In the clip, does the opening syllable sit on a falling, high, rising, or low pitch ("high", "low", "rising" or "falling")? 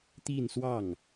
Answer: falling